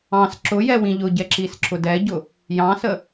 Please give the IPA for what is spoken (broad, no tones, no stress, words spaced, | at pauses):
ɑ̃s ǁʊjɛ wĩʎʊɟɛ ǁisǁʊdɛɟʊ | jɑ̃sə